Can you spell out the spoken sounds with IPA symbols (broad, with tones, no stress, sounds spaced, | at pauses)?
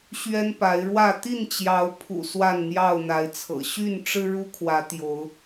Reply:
ɕ ɥ ɛ˦ n p a˨˦ ɪ̯ ɻ w ä˥˨ t̪ i˥˨ n t͡ɕ j ɑ˨˦ ʊ̯ pʰ ṵ˨˩ s w a˥˨ n n̪ j ɑ˥˨ ʊ̯ n̪ a˨˦ ɪ̯ t͡sʰ ɤ̰˨˩ ɕ y˥˨ n ʈ͡ʂ ɻ̩˦ ɻ u˦ kʰ w ä˨˦ t̪ j o˨˦ ʊ̯